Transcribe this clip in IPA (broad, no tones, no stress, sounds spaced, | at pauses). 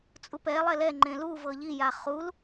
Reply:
t͡sʼ u p ɛ lˠ ɛ l ɛ ŋ͡ǃ ẽ l u v ɤ ʎ i j a χ u l